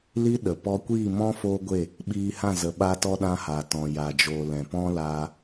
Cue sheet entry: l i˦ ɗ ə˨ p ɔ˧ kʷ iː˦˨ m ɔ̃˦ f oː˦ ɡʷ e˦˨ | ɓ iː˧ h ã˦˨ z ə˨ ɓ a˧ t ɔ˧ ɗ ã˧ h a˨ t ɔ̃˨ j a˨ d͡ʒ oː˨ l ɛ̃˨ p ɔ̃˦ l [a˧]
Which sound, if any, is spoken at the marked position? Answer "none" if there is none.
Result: aː˧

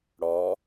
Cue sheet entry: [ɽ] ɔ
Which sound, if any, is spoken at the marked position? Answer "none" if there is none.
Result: ɽ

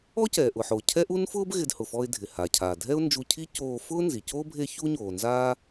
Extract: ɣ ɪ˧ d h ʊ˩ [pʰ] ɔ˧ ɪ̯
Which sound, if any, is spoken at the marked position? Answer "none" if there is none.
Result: f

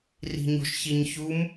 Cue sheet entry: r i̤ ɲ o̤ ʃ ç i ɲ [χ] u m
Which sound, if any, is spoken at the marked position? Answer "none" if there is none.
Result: ç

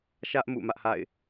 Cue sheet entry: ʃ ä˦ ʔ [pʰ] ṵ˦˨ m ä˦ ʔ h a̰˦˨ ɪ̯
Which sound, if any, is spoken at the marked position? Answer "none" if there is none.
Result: m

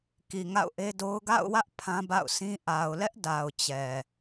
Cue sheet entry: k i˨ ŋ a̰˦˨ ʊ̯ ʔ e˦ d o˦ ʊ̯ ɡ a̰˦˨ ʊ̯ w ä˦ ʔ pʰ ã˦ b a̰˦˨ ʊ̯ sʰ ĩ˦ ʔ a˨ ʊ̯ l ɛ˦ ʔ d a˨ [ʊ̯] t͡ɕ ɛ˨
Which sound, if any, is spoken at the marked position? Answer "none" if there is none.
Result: ʊ̯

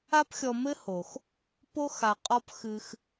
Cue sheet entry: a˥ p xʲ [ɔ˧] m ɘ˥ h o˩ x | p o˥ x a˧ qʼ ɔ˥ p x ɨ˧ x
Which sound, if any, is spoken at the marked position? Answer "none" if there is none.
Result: ɔ˧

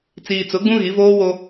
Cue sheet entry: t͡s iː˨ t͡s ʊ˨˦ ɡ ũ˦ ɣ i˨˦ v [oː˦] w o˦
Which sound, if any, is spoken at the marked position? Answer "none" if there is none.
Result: oː˦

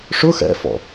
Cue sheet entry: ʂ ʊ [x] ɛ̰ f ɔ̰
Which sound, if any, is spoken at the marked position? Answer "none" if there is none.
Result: x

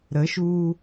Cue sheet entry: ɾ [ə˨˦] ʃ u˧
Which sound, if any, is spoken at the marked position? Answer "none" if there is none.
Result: ə˨˦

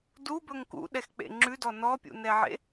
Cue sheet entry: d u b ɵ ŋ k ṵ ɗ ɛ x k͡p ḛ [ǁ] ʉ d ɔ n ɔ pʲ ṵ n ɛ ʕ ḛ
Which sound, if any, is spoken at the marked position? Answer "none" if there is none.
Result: ŋ͡ǁ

